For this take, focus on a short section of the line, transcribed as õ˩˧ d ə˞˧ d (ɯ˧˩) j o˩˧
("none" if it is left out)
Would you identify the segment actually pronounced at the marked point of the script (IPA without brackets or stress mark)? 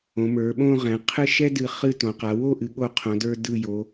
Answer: ɯ˧˩